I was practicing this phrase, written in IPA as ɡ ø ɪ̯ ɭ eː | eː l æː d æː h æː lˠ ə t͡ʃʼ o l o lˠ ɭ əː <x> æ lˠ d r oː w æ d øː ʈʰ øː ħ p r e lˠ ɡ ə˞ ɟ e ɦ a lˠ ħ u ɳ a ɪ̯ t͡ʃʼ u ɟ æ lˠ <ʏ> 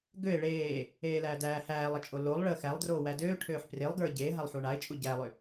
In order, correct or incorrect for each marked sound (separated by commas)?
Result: correct, correct